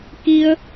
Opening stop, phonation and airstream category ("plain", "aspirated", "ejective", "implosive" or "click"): plain